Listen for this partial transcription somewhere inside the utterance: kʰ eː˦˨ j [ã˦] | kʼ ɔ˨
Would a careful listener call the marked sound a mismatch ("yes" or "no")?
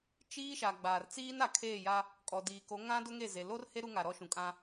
yes